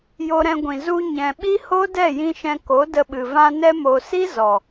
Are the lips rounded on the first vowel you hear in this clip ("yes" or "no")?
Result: yes